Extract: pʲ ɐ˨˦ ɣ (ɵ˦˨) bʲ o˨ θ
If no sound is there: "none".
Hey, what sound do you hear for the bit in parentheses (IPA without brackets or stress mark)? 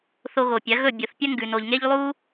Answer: ɵ˦˨